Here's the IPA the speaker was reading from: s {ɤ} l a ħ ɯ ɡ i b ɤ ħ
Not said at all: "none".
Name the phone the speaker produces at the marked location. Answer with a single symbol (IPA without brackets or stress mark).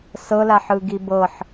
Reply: ɤ